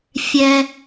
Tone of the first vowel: high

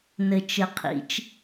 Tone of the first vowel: low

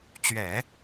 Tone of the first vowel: low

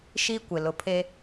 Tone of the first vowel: high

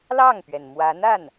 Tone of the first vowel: falling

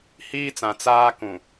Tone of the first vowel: high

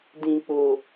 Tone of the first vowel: low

